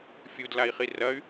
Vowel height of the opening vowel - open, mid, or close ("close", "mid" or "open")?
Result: close